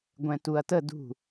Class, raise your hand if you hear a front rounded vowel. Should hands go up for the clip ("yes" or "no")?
no